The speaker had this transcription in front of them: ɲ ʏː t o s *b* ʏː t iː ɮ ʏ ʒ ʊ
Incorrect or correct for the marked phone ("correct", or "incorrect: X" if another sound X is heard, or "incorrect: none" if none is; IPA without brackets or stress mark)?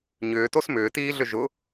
incorrect: m